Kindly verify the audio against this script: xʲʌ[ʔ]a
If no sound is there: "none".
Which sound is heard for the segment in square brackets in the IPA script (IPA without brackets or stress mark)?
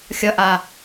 ʔ